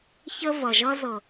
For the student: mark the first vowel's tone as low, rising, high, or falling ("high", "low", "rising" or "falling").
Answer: high